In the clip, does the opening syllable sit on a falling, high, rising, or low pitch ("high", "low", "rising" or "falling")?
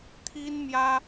high